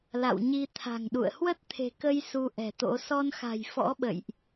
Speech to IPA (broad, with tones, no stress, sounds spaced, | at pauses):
l a̰˧˨ w ɲ i˧ t̪ʰ a̤˨˩ ŋ ɗ ṵ˧˨ ə̯ h w ə˦˥ t̚ t̪ʰ e̤˨˩ k ə˧ j s u˨˦ ʔ ɛ̤˨˩ t̪ o̰˧˥ s ɔ˧ n x a̤˨˩ j f ɔ̰˧˥ ɓ ə̰˧˨ j ʔ